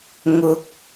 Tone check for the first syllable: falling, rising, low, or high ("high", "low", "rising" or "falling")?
high